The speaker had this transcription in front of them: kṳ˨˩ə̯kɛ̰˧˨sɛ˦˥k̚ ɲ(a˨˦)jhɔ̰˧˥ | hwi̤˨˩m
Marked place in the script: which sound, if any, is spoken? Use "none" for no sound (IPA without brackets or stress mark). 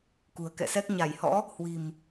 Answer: a˧˩